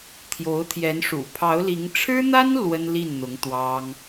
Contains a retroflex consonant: yes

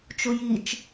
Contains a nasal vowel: no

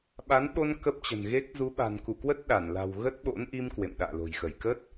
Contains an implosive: yes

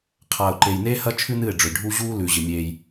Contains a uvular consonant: yes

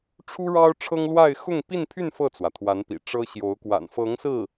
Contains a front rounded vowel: yes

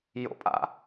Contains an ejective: yes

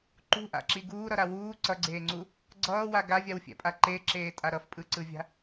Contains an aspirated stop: no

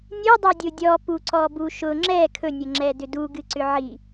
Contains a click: yes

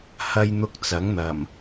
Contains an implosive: no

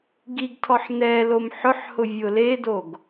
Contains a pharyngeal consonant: yes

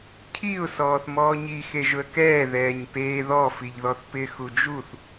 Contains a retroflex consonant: no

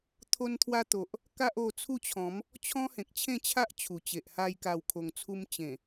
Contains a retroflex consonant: no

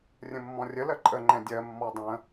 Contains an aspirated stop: no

